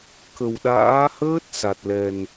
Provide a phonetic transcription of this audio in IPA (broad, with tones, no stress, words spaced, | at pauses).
kə˨˩wɗa̰ː˧˥ həː˦˥t̚ sa˨˩t̚lɛ˨˩n